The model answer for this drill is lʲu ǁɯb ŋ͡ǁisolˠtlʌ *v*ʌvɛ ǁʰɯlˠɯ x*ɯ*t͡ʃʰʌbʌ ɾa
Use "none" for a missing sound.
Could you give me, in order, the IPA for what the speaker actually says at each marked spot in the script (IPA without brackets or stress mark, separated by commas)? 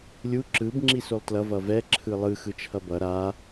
v, ɯ